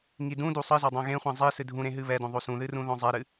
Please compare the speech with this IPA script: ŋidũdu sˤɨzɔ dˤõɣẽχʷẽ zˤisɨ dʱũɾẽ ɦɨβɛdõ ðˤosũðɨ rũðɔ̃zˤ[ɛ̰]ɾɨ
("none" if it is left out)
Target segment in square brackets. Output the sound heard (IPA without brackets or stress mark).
ɛ